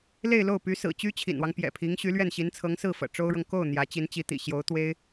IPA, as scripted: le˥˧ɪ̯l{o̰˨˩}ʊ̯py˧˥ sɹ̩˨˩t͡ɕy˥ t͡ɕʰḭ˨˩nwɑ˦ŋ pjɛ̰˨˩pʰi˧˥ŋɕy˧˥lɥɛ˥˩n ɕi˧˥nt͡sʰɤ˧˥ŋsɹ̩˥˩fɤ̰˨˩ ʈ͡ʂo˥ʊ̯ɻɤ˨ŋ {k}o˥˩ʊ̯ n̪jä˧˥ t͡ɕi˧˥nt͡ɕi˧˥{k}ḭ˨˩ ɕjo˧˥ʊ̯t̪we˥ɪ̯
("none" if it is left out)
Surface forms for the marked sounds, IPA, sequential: o˥˩, k, t̪

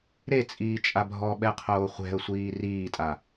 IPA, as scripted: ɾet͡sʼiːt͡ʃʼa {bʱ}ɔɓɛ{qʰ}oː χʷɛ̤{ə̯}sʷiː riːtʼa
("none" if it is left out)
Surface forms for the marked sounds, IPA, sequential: bʱ, qʰ, ə̯

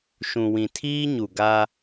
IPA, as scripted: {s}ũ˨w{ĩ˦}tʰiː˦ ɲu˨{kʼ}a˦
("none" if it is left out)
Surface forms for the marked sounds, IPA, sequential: ʃ, ĩ˨, ɡ

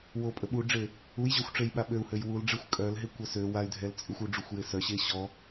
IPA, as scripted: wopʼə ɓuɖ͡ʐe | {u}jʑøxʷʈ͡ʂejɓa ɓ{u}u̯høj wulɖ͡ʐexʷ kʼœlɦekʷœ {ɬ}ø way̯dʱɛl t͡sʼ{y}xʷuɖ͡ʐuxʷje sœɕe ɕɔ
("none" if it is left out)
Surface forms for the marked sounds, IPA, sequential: u, ø, s, y

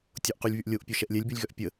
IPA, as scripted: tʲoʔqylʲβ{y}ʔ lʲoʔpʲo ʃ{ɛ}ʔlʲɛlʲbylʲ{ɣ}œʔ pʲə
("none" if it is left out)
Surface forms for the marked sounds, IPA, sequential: y, ɛ, ɣ

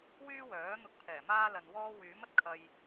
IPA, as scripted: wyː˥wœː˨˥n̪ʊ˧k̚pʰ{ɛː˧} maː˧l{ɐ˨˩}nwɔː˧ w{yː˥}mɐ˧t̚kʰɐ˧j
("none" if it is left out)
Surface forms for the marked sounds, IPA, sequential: ɛː˨˩, ɐ˨, yː˨˥

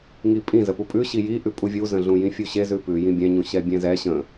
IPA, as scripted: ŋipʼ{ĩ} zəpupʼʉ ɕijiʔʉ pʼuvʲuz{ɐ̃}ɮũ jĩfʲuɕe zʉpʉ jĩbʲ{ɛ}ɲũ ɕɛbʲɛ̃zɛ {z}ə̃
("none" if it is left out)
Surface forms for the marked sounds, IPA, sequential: ĩ, ə̃, ɛ̃, ɕ

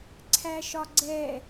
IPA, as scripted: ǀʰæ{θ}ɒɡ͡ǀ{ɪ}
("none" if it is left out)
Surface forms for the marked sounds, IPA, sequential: ʃ, ɛ

